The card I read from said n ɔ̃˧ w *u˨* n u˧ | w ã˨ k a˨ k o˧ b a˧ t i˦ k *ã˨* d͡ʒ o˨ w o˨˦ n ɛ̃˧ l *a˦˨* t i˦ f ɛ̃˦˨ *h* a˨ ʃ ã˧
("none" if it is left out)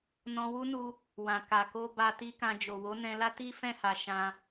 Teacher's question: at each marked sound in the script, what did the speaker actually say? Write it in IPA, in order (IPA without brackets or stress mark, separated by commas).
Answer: u˦, ã˧, a˦, h